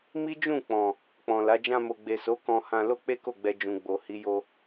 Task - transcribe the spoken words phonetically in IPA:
m i˦ d͡ʒ ũ˦˨ k͡p ɔ̃˨ | k͡p ɔ̃˨ l a˨˦ d͡ʒ ã˧ m o˨ ɡ͡b e˨ s o˨˦ k ɔ̃˧ h ã˧ l o˦ k͡p e˦ k o˦˨ ɡ͡b ɛ˧ d͡ʒ ũ˨ ɡ͡b o˨ h i˨˦ j o˧

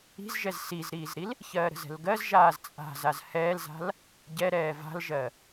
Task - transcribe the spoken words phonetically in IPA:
i̤ z ʒ ɛ z s i z ɾ iː z ɾ i l | ç ɜː ɾ ə̤ z ɛ̤ l ɡ ɜ z ʒ aː z t͡sʼ a̤ z a z h ɛː l z a̤ l | ɟ ɛ ɾ ɛː v a̤ l ʒ ɜ

